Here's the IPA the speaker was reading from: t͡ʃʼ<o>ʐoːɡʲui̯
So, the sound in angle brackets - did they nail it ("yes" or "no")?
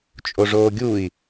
yes